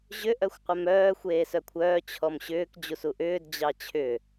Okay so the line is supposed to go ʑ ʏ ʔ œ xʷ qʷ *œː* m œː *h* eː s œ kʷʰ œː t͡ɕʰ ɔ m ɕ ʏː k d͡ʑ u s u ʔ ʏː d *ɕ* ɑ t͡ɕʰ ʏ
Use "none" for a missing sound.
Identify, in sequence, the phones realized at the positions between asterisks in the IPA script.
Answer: œ, xʷ, d͡ʑ

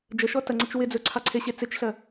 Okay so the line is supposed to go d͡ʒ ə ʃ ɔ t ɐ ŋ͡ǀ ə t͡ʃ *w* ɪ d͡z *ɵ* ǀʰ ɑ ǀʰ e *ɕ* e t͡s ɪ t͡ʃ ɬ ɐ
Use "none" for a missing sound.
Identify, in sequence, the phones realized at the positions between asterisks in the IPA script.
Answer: w, ɵ, ɕ

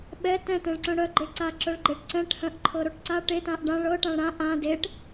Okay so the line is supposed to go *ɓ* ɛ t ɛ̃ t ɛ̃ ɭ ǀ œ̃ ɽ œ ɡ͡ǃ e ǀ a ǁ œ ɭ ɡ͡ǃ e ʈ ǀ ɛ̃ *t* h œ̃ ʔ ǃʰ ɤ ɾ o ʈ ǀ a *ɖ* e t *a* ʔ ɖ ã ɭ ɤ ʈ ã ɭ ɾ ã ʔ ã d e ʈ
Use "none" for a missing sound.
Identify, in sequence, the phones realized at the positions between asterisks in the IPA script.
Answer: ɓ, ʈ, ʈ, ã

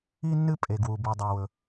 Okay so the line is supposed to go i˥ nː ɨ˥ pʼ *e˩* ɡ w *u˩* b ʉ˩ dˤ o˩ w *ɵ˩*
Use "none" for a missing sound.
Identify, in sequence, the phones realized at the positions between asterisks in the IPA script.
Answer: e˩, u˩, ɵ˩

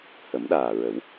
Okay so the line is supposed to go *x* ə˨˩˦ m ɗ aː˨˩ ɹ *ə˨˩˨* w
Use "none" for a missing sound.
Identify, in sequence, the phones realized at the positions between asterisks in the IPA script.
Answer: h, ə˨˩˦

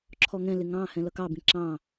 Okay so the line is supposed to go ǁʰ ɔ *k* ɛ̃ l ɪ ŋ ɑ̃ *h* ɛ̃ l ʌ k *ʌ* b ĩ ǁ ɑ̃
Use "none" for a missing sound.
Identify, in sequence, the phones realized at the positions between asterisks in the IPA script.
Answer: ŋ, h, ɑ

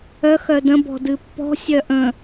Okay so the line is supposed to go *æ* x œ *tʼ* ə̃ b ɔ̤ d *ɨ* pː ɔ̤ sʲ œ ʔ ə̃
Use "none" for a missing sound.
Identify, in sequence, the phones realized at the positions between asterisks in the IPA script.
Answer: œ, d, ɨ

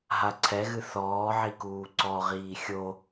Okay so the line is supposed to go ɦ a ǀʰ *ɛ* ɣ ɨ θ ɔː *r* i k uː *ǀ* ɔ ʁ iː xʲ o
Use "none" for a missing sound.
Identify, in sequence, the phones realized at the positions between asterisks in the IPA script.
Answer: ɛ, ʕ, ǀ

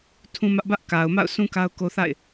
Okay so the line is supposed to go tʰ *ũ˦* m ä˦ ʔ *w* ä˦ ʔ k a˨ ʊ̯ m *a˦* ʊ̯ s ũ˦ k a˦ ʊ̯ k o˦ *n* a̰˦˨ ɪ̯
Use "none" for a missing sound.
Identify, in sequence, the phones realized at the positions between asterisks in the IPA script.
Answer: ũ˦, b, a̰˦˨, θ

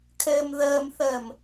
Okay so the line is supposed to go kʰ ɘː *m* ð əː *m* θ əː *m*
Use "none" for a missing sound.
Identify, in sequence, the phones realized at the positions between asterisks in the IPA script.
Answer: m, m, m

